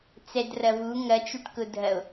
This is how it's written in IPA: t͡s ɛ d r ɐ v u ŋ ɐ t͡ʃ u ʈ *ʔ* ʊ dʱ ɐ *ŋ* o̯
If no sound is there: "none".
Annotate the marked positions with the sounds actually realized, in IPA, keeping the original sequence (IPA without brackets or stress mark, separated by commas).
k, none